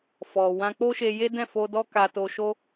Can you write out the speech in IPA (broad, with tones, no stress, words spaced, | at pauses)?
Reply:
fɔ˨ wã˧k͡po˦ʃe˧ je˦dɛ̃˦˨fo˧ dɔ˦ka˧to˧ ʃo˦